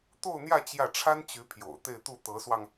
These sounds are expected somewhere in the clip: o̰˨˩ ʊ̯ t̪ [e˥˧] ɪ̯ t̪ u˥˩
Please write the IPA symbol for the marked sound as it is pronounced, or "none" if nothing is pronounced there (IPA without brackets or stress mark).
e˥˧